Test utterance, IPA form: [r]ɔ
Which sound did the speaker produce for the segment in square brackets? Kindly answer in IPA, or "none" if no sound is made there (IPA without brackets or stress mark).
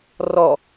r